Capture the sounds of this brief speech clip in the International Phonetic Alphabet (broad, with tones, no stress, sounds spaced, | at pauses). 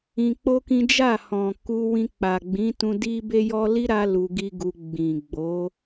ĩ˧ k͡p o˦ k ĩ˦ d͡ʒ a˦˨ h ɔ̃˨ k u˧ w ĩ˧ k͡p a˨ ɡ͡b ĩ˨˦ t ũ˧ d i˦ b e˦ j ɔ˦ l i˦ ɾ a˧ l u˧ ɡ i˦ ɡ u˧ ɡ͡b ĩ˨ ɡ͡b o˨˦